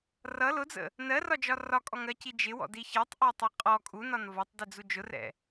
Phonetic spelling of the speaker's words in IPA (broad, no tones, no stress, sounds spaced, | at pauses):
r ʌ l ʊ d͡z ə̰ | n ɜ r ɒ d͡ʒ ɒ r ɒ kʼ ɔ ŋ ɜ c i d͡ʒ ɪ w ɔ̰ d i ç ɛ tˤ ʔ ɜ tˤ ɛ qʼ ɔ kʼ u n ɒ n v ɒ tˤ d i d͡z u d͡ʒ ʊ r ɛ̰